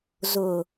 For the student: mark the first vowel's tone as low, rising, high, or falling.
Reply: low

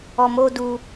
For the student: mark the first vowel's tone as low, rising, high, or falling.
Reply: low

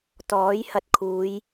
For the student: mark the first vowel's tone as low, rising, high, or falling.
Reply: rising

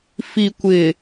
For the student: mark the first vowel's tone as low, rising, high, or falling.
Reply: low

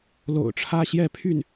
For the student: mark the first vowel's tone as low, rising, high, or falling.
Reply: low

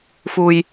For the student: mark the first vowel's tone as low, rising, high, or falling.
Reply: low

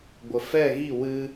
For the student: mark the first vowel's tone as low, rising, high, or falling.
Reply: low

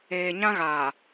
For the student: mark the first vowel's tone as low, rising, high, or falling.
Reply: low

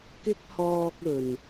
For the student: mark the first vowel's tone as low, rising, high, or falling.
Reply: high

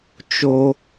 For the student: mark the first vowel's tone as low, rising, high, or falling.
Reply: high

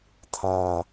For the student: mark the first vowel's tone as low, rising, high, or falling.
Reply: low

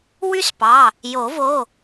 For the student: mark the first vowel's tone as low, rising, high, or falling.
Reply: high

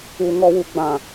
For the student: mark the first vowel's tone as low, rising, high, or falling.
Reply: low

